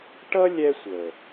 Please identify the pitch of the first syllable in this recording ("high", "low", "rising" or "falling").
high